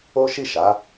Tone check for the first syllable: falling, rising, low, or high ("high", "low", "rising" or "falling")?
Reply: high